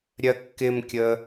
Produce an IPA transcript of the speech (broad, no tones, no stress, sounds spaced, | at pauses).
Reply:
ɾʲ ɜ kː ɪ m kʲ ə